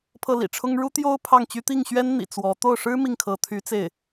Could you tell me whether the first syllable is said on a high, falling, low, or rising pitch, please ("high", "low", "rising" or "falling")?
falling